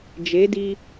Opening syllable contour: rising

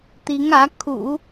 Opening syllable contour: rising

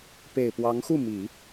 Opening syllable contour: low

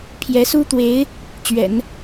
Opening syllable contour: rising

